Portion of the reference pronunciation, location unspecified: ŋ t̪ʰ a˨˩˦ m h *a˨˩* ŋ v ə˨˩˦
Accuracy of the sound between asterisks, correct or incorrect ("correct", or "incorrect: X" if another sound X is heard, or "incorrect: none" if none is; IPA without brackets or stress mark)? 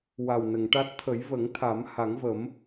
incorrect: a˨˩˦